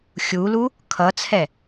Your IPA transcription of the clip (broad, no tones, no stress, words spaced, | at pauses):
xʲulu | kʰʌt͡sʰɛ